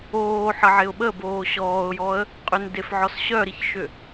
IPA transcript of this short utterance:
oː ħ ə ʕ ɪ ʊ̯ ɓ ə b oː ɕ ɔː ʊ̯ j ɔ ə̯ | qʼ ʏ n d e f ʕ ɔ s ɕ œ ɾ i ç ʃ ʏ

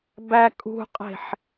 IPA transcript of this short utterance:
b æ kʼ ṳ qʼ e̤ ħ

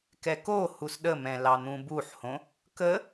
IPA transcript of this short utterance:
k ɛ k o h u s ɗ ə m ɛ̃ l ɑ n̪ ũ b u ħ h õ | k ə

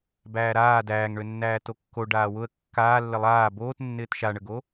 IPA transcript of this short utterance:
b æː ɾ aː d æː ŋ ɳ ø nː æː t o kː o ɖ aː w ʊ ə̯ kː aː lː ɪ lˠ aː b oː t nː ɪː t ʃ a ɳ ə ɡ o

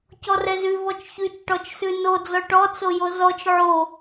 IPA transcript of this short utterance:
c ɔ r ɛ z ʉ v ɔ t͡ʃ ç ʉ t͡ʃ ʈ ɔ t͡ʃ s ʉ n o d͡z ɔ ʈ ɔ t͡s o j o z ɔ t͡ʃ ʕ o

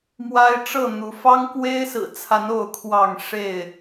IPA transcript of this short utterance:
m w a˦ ɪ̯ ʈ͡ʂ ɤ˥˨ n̪ u˨˦ f ɑ˦ ŋ k w e˦ ɪ̯ s ɹ̩˨˩ t͡sʰ a˨˦ n o˥˨ ʊ̯ kʰ w ɑ˥˨ ŋ ʂ e˥˨ ɪ̯

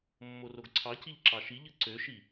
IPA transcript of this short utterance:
mː o r o ɡ ǀʰ ɑ c i ʎ ǁ ɑ ʃ i ʎ ɯ ǀ ø ʃ i

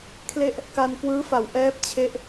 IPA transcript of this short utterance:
kʰ l e˥˩ ʔ | k a˧ n k w ɯː˦˥ f a˨˩ w ʔ ɛː˦˥ p̚ t͡ɕʰ e˦˥ ʔ

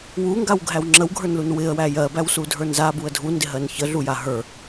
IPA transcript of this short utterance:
w u ŋ ɡ a w ɡʱ æ w ŋ͡ǁ ə w ɡʱ ə˞ n l u n w ɪ ə̯ w æ j ɜ b æ w s u dʱ ə˞ n z a b u ə̯ dʱ u n d ɪ ɦ ɜ n ç ə ɮ u j a ɦ ə˞

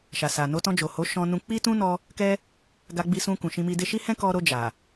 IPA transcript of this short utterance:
ʃ a˨ s a˨ n o˧ t ɔ̃˧ d͡ʒ o˨ h o˨˦ ʃ ɔ̃˧ n ũ˧ k͡p i˦ t ũ˦ n ɔ˧ | k ɛ˦ | ɡ a˧ ɡ͡b i˧ s ũ˧ k ũ˨ ʃ ĩ˧ m i˧ d e˦ ʃ i˦ h ɛ̃˦ k ɔ˧ ɾ o˧ d͡ʒ a˨

